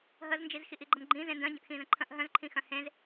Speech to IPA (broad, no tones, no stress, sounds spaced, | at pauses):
ɦ ə z n d͡ʒ i z x i ʔ i ɡ͡ǃ ə m ɡ͡ǃ ĩ z ẽ n d œ̃ ɟ ə̃ ʔ x ĩ z ə̃ ǃʰ ə̃ ʔ ɦ œ̃ z ǃʰ ĩ x œ̃ h ẽ z